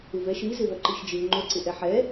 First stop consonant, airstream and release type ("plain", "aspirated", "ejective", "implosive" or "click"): click